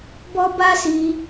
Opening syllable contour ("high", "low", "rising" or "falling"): high